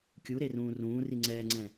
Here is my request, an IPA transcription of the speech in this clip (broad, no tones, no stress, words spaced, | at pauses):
kʲuɾerũː rũːri ŋ͡ǀɛːŋ͡ǀɛ̃